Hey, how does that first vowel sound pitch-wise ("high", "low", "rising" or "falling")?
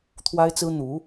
high